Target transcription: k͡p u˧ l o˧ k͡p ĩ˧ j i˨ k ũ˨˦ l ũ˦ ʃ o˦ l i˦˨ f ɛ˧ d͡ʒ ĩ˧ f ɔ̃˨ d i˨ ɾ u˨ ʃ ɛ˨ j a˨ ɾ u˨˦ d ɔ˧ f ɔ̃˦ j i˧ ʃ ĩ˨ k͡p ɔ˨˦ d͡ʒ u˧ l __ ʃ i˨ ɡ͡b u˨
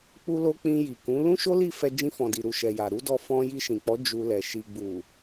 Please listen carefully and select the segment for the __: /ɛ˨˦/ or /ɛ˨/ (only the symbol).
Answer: ɛ˨